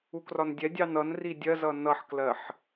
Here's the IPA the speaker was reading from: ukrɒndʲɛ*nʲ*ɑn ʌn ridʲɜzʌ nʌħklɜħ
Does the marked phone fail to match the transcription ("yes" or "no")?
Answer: yes